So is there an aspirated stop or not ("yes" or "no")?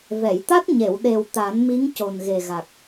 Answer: no